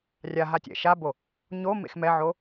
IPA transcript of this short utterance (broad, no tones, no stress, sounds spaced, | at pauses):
rʲ a ɦ a tʲ ɛ̰ ʃ a b o | ɲ o m ḛ x m ɛ ʕ o